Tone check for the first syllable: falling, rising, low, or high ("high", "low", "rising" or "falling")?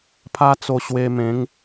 high